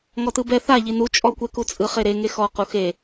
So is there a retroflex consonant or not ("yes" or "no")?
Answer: no